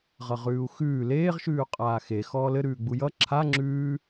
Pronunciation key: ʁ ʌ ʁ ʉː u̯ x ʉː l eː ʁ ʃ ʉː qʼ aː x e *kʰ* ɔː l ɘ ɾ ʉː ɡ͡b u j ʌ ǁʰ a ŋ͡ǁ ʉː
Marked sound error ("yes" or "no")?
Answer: yes